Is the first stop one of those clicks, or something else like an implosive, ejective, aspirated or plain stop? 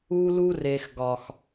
plain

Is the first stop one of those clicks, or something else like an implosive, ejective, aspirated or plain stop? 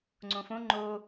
click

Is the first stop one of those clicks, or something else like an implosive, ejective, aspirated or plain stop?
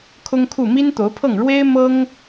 aspirated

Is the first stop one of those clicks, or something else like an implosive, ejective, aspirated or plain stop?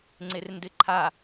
click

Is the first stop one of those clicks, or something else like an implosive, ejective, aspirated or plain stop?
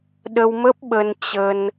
implosive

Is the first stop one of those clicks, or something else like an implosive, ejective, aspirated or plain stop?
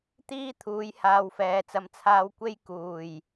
plain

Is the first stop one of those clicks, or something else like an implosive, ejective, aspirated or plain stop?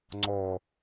click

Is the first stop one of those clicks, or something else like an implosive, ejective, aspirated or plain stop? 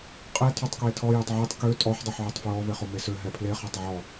ejective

